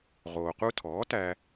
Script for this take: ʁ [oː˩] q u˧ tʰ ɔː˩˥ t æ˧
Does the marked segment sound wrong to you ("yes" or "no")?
no